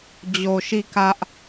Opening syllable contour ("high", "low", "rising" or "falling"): low